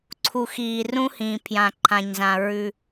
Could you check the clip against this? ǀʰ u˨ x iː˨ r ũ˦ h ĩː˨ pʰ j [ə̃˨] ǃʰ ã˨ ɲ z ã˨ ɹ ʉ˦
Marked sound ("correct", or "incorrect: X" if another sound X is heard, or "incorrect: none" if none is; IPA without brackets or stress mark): incorrect: ã˨